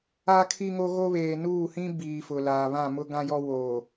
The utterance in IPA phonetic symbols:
a˦ kʰ i˦ ŋ o˦ ɣ o˦ β eː˨ n uː˦˨ h ĩ˦ b iː˨ f ʊ˨ l aː˨ β ã˦˨ m ʊ˦ ɡ ã˦ j ɔ˦ w oː˨

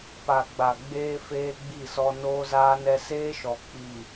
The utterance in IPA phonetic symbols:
p a˨ ɡ͡b a˨ ɡ͡b eː˦ f eː˦ ɡ͡b i˦˨ s ɔ˦ n oː˦ z aː˦ n ɛ˦ s eː˦ ʃ ɔ˨ k͡p i˨

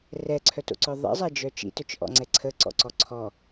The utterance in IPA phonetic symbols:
r ɛ ǀʰ œ t o̰ ǀ œ ðˤ ḭ zˤ ɛ d͡ʒ œ t͡ʃ ḭ t œ t͡ʃ ʔ ɔ̰ ŋ͡ǀ ɛ ǀʰ ə ǀ ɔ̰ ǀ ɔ ǀʰ ɔ

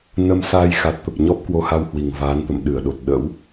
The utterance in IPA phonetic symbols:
n ə˧ m s aː˧ j x a˨˩ t̚ t̪ ə˨˩ p̚ ɲ ɔ˦˥ p̚ k w o˧ h a˧ w h w i˨˩ ŋ v aː˨˦ n t̪ ə̰˧˨ m ɗ ɨ˧˩ ə̯ ɗ o˨˩ t̚ ɗ ə̰˧˥ w

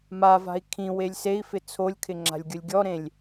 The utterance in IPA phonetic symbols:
m a v a̤ i̯ kʰ ĩ w e lʲ s e i̯ f ɪ t͡sʰ o lʲ kʰ ɪ ŋ͡ǁ a̤ lʲ ɡʲ ʊ lʲ ɡʲ ɔ ɾ ẽ lʲ

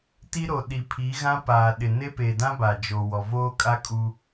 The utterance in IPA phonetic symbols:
t i˦ ɾ o˨ ɗ i˨ pʰ i˨˦ ɣ ã˦ p aː˨ ɗ ɪ˨ n e˦ p e˨ d ã˦ b a˨ d͡ʒ o˨ w ɔ˨ v oː˦ kʼ a˦ kʼ u˦

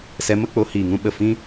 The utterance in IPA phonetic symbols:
s ɛ˨˦ m ə˧ k͡p o˨˦ h iː˨ ŋ ũ˦ ɓ ə˦˨ f ĩ˧

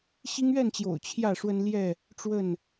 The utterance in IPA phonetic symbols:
ɕ i˦ ŋ ɥ ɛ˥˨ n t͡ɕ j o̰˨˩ ʊ̯ t͡ɕʰ j ä˥˨ ʂ w ə˦ n l j ɛ˥˨ | ʈ͡ʂ w ə˥˨ n

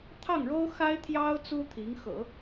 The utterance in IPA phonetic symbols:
t̪ʰ ɑ˥˩ ŋ ɻ o˥ ʊ̯ x a˥ ɪ̯ t̪ʰ j ɑ˥ ʊ̯ t͡s u˥ t̪ʰ i˧˥ ŋ x ɤ̰˨˩˦

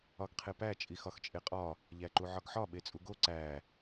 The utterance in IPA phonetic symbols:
ɒ ɡ qʰ e p æ t͡ʃʼ i x ɒ x t͡ʃʼ e qʼ ɒ | ʎ æ ǃ u ʕ ɒ ɡ ħ ɒ ɓ e t͡sʼ u ɡ o ǀ æ

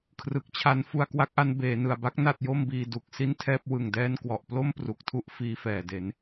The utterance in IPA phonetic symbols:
kʰ r ɯ˨˩ k̚ t͡ɕʰ a˦˥ n f u˧ a̯ k w a˦˥ k̚ ʔ a˦˥ n b eː˩˦ n ɯ˨˩ a̯ b a˥˩ k̚ n a˥˩ t̚ j o˥˩ m b iː˧ d u˨˩ k̚ s i˥˩ n tʰ ɛː˥˩ p̚ w ɯ˨˩ ŋ d ɛː˧ n k w ɔ˨˩ ʔ p l o˥˩ m p r u˨˩ k̚ tʰ u˦˥ ʔ f iː˧ f ɛː˨˩ d e˩˦ n

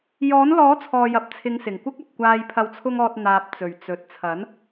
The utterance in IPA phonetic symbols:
j ɔː˨˥ n l ɔː˨˥ t͡sʰ ɔː˨ j ɐ˨ p̚ t͡sʰ ɪ˨˧ ŋ s ɪ˨˩ ŋ kʷ ɪ˥ k̚ ɐ˨ p̚ kʷ aː˧ j pʰ ɐ˨ w t͡sʰ ʊ˧ ŋ ɔː˨ t̚ n̪ aː˨ p̚ t͡s ɵ˨˩ ɥ t͡s ɵ˨ t̚ t͡sʰ ɐ˨˥ n

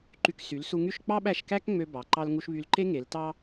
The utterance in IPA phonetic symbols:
ǃ y˧ k s y˩˥ l s u˧ ŋ y˥˩ ʃ k͡p ɑ˥ ɓ æ˥˩ ʃ k æ˥ k ŋ͡m ø˧ b ɑ˩˥ ǃ ɑ˥ l ŋ u˥ ʃ β y˧ l ǃ e˥ ŋ e˩˥ l t ɑ˥

